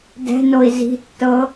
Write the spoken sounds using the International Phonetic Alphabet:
d ɛ̤ n o i̯ z i̤ tː ɤ

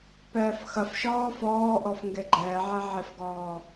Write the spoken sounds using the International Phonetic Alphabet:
p ɛː f x ɐ f ʃ ɔː f ɔː ʔ ɔ f ŋ ɡ e ɡ͡ǃ ɛː ʕ ɛ ʕ e f ɡ ɔː

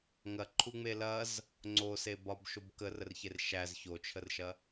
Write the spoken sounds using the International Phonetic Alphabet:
ŋ ɐ ǃʰ u ŋ͡m e l ɐ z | ŋ͡ǀ o s e b ɒ b ʃ o b k ə r ə r ç e r ʃ æ z ç o t͡ʃʰ ə r ʃ ɐ

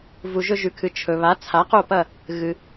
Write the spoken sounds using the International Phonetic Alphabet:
v u˩ ʒ ɵ˧ ʒ ʉ˩ kʰ ɨ˩ t͡ʃʰ ɵ˩ β a˩˥ t͡sʰ a˩˥ q o˥˩ p ɐ˥˩ | ɣ ɨ˩

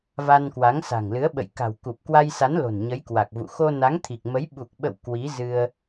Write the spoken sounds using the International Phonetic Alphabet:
v a˧ n k w a˨˦ ŋ s a̤˨˩ ŋ l ɨ˨˦ ə̯ ɓ ə̰˧˨ j k a̤˨˩ w k u˨˩ p̚ k w a˧ j s a˨˦ n l o̤˨˩ n ɲ ə˨˦ j k w a˨˩ k̚ v ṵ˧˨ x o˧ n a˨˦ ŋ t̪ʰ i˨˩ k̚ m ə˨˦ j ɓ u˨˩ k̚ ɓ ə̰˧˨ w k w i˨˦ z ɨ˧ ə̯

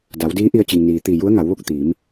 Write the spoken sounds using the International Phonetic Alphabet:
d a˩˧ w d iː˧˥ ʔ i˧ ə̯ t͡ɕ i˩ ŋ n iː˩ t̪ i˧˩ j u˧˥ ə̯ ŋ a˩˧ w ʋ o˥˨ k̚ t̪ iː˩˧ m

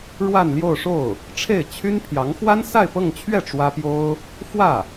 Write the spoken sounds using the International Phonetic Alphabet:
ɻ w a˥˧ n l j o˥˧ ʊ̯ ʂ o˥˩ ʊ̯ | ʈ͡ʂʰ e˥˩ ɪ̯ t͡ɕʰ y˥ n pʰ j ɑ˧˥ ŋ x w a˥ n s a˥˧ ɪ̯ p ɤ˥˧ ŋ t͡ɕʰ ɥ ɛ˥˩ ʈ͡ʂ w ä˥ p j o˥ ʊ̯ | f w ä˥˩

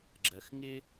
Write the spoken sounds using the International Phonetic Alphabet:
ɡ͡ǁ ɜ˨ x ŋ ɪ˦

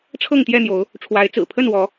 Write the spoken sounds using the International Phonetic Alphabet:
ʈ͡ʂʰ ɤ˥˨ ŋ t̪ j ɛ˥˨ n̪ j o˨˦ ʊ̯ | ʈ͡ʂʰ w a˨˦ ɪ̯ t͡s ɹ̩˨˩ pʰ ə˥˨ n w ɔ˨˦

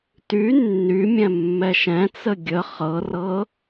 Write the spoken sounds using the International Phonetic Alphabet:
t y nː y mʲ ɛ̃ mː ɛ ʃ ɛ̃ t͡s ə ɡʲ ə χ ɤ r ɤ

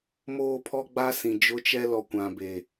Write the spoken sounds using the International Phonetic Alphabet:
m oː˦ pʰ ɔ˦ ɡ͡b a˦ s ĩ˨ d͡ʒ ʊ˦ t͡ʃ ɛ˦ l ɔ˨ kʷ ã˨ b e˨

